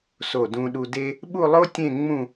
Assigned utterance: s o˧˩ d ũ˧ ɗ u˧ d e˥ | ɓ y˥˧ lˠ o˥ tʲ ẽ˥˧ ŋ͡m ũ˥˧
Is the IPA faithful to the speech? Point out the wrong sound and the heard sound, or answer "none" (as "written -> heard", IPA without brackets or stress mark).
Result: y˥˧ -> u˥˧